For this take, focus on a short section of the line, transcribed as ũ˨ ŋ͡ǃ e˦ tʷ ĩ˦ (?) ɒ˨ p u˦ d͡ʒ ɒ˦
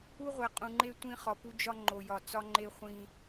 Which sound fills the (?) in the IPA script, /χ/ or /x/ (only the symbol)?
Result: χ